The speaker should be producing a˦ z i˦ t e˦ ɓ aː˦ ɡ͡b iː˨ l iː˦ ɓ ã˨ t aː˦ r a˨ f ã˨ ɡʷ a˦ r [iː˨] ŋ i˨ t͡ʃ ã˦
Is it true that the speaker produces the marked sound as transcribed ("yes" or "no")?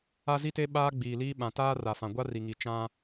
no